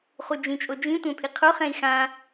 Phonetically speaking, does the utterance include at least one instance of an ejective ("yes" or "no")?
yes